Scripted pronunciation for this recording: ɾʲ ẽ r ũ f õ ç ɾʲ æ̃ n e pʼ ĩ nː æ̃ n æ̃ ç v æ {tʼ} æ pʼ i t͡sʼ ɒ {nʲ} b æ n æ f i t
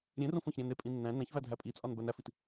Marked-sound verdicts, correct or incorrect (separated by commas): incorrect, incorrect